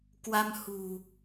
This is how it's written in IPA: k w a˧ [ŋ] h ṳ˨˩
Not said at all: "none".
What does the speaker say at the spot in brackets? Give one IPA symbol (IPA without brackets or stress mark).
m